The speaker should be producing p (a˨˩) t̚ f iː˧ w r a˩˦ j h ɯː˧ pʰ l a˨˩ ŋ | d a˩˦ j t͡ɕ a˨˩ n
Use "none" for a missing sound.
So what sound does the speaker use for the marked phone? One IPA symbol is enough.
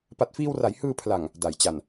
a˨˩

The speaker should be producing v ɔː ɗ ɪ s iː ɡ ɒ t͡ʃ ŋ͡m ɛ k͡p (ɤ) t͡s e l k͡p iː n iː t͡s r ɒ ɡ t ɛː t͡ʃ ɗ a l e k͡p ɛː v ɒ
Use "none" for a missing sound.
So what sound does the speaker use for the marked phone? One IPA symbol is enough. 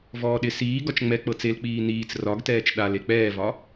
ɤ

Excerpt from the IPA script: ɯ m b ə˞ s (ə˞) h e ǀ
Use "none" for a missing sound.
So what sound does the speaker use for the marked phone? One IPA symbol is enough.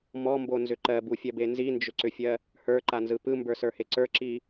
ə˞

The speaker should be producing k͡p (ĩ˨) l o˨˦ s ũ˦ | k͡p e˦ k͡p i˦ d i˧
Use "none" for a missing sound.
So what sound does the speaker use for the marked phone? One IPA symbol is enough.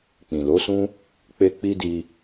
ĩ˨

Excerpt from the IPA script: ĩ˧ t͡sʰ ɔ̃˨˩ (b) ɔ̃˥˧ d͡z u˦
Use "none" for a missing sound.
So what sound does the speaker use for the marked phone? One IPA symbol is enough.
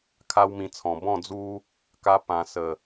b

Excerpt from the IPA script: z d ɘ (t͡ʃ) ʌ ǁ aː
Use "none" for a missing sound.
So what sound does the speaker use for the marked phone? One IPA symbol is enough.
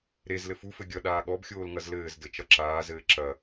t͡ʃ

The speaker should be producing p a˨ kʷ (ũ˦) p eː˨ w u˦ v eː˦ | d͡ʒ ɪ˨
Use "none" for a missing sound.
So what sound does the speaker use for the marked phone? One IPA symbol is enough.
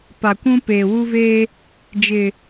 ũ˦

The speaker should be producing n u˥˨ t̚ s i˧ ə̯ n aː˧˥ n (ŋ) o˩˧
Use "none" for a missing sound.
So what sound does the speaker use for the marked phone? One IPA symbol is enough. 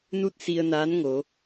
ŋ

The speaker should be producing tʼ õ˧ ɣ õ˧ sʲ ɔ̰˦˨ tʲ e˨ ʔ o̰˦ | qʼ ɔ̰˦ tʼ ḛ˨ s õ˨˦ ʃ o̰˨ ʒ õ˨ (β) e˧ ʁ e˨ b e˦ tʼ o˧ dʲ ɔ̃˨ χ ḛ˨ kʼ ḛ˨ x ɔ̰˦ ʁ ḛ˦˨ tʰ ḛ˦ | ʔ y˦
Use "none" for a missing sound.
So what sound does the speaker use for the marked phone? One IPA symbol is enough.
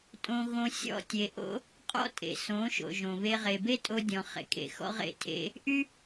β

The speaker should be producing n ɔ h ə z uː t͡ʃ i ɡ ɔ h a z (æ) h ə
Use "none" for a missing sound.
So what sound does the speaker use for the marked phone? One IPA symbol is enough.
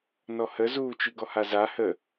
a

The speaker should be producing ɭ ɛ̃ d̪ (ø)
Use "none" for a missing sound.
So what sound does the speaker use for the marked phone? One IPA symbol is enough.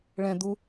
u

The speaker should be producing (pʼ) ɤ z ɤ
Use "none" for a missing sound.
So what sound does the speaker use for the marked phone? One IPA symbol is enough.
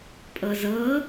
pʼ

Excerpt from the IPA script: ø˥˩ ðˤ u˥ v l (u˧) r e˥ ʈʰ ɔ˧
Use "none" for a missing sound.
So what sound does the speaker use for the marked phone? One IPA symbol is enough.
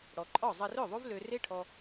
ø˧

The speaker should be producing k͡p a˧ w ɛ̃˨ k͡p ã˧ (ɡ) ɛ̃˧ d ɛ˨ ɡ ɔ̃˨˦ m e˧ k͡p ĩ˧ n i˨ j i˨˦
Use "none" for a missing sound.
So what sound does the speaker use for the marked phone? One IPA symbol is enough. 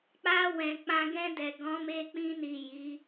ɡ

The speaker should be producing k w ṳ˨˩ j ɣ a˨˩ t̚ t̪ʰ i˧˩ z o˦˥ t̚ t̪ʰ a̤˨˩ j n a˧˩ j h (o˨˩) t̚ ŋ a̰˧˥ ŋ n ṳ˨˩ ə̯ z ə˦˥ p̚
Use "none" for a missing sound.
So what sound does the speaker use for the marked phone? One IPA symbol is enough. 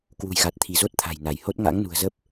o˦˥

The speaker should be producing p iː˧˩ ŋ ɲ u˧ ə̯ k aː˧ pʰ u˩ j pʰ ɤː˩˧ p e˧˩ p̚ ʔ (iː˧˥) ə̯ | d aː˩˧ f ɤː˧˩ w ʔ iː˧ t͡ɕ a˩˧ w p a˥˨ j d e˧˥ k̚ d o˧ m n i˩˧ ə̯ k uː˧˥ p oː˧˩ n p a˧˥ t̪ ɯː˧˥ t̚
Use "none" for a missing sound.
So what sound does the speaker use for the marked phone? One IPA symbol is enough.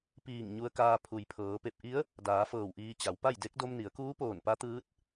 i˧˥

